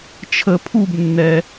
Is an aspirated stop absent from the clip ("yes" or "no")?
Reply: no